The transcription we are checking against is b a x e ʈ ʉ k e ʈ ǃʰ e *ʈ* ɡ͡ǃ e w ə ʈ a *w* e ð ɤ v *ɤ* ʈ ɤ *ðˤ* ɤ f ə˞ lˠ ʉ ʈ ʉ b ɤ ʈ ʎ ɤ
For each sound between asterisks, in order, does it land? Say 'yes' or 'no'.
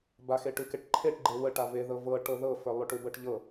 yes, no, yes, no

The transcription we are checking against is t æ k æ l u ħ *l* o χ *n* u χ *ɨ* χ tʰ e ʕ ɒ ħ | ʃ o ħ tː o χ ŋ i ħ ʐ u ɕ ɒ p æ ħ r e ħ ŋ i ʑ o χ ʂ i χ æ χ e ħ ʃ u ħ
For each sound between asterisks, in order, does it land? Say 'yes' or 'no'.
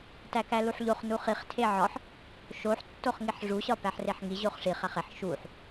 no, yes, no

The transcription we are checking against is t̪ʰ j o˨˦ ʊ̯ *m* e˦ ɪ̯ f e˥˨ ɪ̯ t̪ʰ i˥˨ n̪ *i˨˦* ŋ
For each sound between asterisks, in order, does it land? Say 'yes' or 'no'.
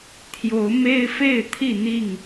yes, no

